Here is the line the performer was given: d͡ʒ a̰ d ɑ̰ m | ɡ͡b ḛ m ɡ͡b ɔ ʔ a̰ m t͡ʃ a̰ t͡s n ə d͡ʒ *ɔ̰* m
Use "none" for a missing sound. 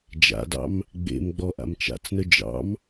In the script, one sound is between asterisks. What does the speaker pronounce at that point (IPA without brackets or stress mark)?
ɑ̰